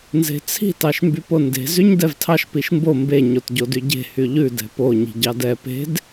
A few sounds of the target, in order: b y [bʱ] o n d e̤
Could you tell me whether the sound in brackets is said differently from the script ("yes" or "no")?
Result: yes